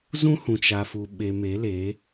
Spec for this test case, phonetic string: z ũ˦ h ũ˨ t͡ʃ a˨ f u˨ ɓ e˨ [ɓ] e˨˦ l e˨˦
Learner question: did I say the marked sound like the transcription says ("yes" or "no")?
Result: no